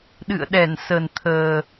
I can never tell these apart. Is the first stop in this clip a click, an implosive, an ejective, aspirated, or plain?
implosive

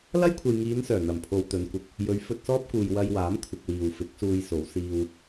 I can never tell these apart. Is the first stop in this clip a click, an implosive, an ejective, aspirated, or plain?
aspirated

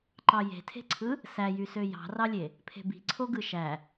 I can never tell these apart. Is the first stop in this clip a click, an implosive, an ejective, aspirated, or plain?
click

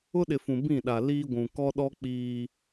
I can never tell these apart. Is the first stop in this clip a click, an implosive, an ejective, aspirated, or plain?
implosive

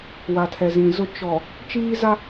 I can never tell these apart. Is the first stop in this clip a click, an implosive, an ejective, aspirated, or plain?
aspirated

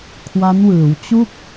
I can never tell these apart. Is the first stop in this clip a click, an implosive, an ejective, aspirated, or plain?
aspirated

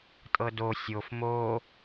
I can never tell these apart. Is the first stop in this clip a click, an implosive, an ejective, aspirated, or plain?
ejective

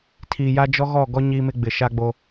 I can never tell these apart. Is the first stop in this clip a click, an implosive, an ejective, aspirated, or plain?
aspirated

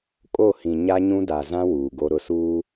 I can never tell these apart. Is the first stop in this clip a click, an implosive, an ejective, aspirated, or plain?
ejective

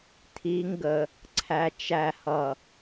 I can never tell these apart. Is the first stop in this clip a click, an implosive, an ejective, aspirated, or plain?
aspirated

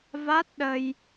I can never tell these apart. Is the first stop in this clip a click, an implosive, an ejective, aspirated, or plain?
plain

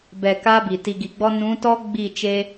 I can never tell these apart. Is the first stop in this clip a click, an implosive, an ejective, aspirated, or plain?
plain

